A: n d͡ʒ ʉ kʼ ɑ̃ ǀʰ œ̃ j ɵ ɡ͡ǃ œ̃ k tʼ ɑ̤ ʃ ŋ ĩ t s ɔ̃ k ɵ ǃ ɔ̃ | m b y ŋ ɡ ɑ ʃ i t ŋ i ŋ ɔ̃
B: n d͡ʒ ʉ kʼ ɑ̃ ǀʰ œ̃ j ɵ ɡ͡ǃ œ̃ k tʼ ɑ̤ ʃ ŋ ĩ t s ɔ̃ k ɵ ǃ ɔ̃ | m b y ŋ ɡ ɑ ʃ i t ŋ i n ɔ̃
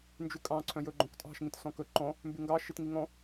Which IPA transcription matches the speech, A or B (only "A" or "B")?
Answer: A